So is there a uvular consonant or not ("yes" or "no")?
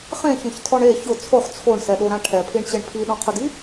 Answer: yes